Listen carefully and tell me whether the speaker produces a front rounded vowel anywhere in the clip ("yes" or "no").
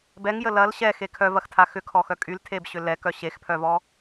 yes